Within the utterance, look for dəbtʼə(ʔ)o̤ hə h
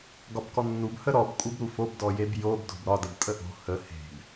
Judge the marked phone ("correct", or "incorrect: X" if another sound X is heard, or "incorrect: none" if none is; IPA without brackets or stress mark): correct